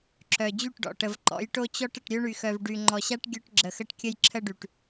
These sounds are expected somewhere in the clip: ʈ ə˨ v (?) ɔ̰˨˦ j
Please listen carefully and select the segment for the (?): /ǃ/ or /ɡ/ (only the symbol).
ǃ